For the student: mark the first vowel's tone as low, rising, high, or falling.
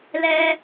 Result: high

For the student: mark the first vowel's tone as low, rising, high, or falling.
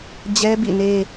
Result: high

